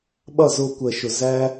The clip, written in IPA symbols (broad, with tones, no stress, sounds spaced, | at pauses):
ɓ ʌ˦˨ z ʊː˧ kʷ əː˨ ʃ ʊ˨ z æ˦